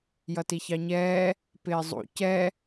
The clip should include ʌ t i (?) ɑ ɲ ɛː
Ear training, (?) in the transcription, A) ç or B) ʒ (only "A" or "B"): A